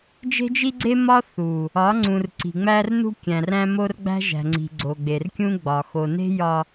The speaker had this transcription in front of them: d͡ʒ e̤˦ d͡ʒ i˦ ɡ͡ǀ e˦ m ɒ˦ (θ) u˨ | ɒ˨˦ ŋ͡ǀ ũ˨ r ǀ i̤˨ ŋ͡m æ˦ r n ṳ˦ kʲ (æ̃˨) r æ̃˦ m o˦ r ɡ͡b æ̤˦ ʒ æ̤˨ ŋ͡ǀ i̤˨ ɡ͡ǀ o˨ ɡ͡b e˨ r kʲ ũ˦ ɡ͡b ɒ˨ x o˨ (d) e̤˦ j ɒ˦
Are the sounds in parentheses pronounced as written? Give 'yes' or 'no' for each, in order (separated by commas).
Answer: yes, yes, no